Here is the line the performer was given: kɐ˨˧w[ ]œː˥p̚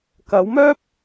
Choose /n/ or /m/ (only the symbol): m